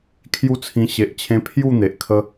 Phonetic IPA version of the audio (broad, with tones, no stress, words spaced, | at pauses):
kʰju˦t͡sʰĩ˧ ɕe˨ʔt͡ɕʰẽ˧ pʰju˥˧n̪e˨ʔ kʰə˧